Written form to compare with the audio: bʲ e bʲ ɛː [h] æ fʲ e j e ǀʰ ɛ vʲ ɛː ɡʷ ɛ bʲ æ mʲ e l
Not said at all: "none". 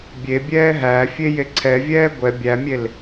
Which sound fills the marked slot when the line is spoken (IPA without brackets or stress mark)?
ɦ